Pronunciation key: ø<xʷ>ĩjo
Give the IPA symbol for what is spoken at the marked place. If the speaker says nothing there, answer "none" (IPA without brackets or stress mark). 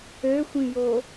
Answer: xʷ